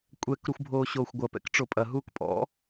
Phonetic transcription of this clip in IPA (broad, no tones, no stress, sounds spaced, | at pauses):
kʷʼ ɛ k ɾ u xʷ bʱ oː ɕ oː xʷ ɡʷ ɐ p ɛ̰ k ʈ͡ʂ o pʼ ɐ ɦ uː k pʼ ɔ̰